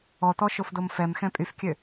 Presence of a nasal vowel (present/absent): present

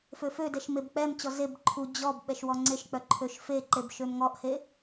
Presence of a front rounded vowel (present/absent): present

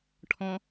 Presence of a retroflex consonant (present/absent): present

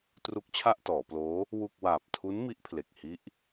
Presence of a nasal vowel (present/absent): absent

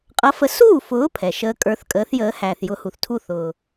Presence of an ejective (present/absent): present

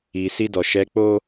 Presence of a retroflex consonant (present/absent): absent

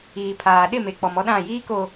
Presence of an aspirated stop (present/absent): present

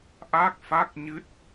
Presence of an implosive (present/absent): absent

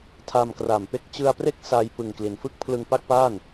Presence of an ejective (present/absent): absent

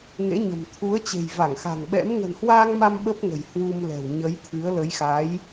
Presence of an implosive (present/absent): present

